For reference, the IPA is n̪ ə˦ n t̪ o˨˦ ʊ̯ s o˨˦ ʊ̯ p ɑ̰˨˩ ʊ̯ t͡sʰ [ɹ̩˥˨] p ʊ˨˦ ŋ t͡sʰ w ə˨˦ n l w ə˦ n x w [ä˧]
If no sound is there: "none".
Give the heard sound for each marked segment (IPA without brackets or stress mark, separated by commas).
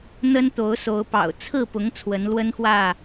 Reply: ɹ̩˥˨, ä˥˨